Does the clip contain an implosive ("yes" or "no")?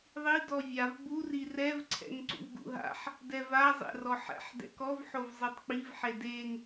no